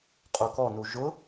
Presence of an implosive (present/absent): absent